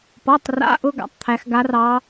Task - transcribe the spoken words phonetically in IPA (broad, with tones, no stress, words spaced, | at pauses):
pɔ˧˥˧tˤra̰˦˥ʔʊ˦˥ ɡa̰˩˥tˤt̪ʰæ˦˥x ɡa˦˥rɑ˦˥